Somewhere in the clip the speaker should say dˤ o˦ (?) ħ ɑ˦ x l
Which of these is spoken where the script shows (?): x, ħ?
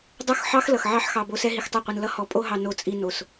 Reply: x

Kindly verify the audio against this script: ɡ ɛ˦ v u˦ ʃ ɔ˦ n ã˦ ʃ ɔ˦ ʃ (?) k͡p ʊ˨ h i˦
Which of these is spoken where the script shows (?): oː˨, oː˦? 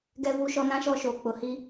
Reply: oː˨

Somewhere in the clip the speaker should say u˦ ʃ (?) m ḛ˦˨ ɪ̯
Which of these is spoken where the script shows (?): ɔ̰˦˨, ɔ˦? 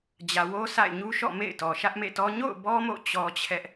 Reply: ɔ̰˦˨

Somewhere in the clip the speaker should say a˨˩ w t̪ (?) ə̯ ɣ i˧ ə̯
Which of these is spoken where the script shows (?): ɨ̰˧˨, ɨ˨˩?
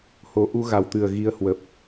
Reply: ɨ˨˩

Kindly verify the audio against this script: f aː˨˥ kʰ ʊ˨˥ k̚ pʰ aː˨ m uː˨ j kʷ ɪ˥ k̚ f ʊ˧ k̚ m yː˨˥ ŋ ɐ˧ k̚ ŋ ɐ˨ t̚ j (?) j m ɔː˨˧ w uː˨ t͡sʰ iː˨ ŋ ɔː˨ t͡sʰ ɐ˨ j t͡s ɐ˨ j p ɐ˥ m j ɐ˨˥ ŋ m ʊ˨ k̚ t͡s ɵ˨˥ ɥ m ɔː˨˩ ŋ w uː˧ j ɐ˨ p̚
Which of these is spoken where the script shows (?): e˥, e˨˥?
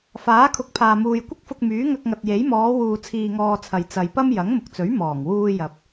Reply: e˨˥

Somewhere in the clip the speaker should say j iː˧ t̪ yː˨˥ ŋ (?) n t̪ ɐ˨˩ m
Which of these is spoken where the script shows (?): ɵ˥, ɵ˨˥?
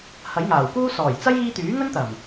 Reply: ɵ˥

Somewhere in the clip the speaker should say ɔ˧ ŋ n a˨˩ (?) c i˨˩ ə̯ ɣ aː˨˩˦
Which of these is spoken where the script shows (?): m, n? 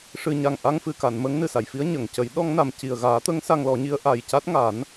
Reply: m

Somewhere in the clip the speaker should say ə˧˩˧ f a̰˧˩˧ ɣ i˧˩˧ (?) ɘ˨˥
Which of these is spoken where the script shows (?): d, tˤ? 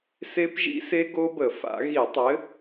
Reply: tˤ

